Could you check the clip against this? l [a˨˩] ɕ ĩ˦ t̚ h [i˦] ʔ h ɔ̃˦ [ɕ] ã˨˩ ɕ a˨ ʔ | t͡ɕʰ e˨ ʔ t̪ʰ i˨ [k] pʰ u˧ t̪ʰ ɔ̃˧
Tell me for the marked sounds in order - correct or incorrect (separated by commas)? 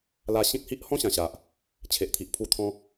incorrect, correct, correct, incorrect